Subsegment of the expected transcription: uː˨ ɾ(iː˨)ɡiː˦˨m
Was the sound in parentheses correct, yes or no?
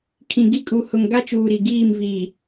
no